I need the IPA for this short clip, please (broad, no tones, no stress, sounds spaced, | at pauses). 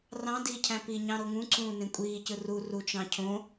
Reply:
r ɑ̃ d i cʰ æ̃ p i ɲ ɑ̃ ɾ o ŋ ũ ǀ ũː n ẽ kʷʼ iː c ɯ r u r u t͡ʃ ɑ̃ cʰ õ